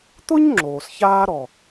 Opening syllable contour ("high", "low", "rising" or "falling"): high